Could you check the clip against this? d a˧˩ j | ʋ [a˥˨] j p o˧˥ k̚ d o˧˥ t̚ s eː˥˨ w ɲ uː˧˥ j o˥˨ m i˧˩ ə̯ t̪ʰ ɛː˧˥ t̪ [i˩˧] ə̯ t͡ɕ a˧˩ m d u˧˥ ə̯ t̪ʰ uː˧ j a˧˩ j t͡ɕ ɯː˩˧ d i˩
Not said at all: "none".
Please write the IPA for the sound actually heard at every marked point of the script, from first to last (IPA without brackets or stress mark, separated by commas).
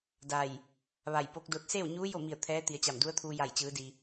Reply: a˧˩, i˩˧